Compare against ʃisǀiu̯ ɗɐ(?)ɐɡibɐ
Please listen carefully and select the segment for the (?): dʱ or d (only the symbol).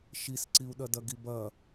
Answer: d